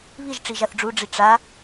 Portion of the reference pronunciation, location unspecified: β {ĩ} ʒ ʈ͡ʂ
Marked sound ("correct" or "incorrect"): incorrect